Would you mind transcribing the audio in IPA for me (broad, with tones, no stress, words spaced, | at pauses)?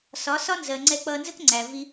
sɒ˨˦sɒ˦nzɜ˨ ŋ͡ǀɛ˧k͡pʌː˧nzə˦kŋ͡ǀæ˨ vi˧